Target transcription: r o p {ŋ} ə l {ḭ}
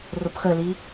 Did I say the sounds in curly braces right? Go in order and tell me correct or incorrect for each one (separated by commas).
incorrect, incorrect